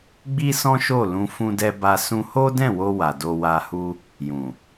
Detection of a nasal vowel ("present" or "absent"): present